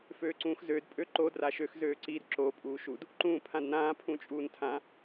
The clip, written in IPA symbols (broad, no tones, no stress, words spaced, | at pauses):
føːǀũːxzøːd pʼøǃo draʃøx zøːǀid ǁo pʼuːʃud | ǃũːpʰãdnãː pʰũt͡ʃʼuːntʰã